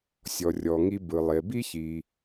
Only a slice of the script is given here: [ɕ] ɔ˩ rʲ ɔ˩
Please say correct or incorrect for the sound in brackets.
incorrect